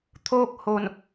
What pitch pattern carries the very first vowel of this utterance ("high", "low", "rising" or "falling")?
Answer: falling